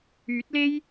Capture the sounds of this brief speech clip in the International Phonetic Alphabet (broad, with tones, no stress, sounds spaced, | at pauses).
yː˨˥ t̚ l e˥ j